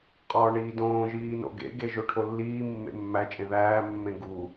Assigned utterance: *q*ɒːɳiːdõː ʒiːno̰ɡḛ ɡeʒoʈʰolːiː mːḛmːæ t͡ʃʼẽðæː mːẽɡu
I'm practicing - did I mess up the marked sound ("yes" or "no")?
yes